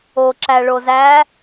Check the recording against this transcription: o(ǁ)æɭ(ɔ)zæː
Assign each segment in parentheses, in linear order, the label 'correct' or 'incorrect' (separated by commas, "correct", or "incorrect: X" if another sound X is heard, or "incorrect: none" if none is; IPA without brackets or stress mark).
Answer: correct, incorrect: o